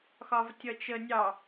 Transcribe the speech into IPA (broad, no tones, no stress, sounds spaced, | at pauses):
x ɒ v tʲ ʌ t͡ʃ ə nʲ ɑ